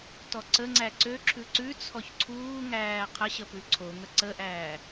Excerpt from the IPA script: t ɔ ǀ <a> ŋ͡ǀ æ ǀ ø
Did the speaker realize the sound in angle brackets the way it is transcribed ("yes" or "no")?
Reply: no